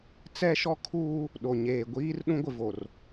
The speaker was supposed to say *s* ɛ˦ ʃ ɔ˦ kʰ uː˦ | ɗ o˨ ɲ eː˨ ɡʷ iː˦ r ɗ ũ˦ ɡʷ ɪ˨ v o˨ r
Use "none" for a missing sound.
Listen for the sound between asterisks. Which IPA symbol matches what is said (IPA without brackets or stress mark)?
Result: t͡s